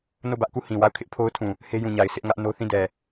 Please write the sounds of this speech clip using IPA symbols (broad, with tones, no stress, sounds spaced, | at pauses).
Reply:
n o˦˨ b ä˦ ʔ k u˦˨ h ĩ˨ w a˦˨ ʊ̯ kʰ ɪ˦ ʔ pʰ o˦ ʊ̯ tʰ ũ˨ | h e˦ j ũ˨ ɲ a˨ ɪ̯ sʰ ɪ˦ ʔ ŋ ä˦ ʔ n o˦ θ ĩ˦˨ d ɛ˨